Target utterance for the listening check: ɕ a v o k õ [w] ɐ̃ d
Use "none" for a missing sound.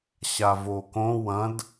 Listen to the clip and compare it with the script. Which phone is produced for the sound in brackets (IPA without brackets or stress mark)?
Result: w